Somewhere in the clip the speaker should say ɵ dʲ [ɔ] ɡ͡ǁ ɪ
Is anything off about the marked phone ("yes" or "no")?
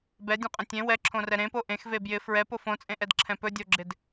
yes